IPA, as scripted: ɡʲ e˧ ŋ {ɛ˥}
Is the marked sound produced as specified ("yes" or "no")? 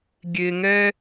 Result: yes